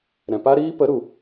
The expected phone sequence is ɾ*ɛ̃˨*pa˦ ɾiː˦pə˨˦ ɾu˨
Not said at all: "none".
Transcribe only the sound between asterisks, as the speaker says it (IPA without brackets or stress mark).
ɛ̃˨